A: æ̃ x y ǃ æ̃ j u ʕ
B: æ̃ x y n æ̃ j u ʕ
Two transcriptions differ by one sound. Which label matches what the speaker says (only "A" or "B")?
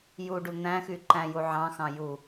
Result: A